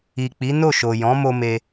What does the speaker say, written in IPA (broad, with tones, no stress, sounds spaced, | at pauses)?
i˨ k͡p i˨˦ n o˦˨ ʃ o˨ j ɔ̃˨˦ m o˧ m e˧